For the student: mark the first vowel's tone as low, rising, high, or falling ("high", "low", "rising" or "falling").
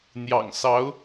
low